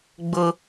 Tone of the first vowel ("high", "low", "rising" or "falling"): high